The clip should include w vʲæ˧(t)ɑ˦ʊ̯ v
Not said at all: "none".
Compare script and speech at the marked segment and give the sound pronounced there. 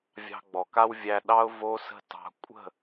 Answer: ɗ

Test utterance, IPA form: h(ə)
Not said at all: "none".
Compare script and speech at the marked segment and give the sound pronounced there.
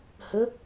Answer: ə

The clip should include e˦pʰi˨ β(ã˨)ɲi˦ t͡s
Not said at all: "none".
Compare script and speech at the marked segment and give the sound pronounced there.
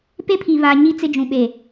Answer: a˨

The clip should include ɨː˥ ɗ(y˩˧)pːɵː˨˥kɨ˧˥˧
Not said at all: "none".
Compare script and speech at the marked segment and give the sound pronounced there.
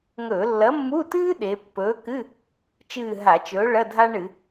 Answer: e˩˧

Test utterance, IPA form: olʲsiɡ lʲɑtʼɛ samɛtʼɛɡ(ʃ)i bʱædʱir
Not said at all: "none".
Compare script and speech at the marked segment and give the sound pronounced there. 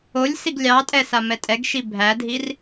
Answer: ʃ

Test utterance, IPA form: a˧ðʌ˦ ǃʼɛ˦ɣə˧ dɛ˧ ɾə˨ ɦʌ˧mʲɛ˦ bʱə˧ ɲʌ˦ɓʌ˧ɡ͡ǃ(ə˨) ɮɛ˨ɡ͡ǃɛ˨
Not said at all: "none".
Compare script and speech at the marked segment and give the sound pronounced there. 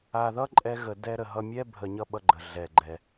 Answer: ə˨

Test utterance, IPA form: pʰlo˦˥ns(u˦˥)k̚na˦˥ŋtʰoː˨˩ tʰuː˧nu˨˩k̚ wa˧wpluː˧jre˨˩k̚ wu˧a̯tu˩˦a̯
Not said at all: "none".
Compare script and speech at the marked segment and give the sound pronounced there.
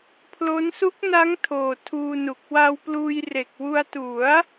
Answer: u˦˥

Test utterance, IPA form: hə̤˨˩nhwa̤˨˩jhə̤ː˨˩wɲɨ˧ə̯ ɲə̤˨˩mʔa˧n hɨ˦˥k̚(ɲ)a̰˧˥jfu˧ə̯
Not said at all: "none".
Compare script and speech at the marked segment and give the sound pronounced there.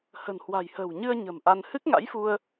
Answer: ŋ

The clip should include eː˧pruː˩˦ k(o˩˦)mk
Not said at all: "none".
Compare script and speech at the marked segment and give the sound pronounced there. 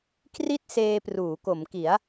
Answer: o˩˦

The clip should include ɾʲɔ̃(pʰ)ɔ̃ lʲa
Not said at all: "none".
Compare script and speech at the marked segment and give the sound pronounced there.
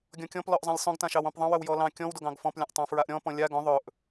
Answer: p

